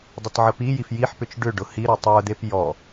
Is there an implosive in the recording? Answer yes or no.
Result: no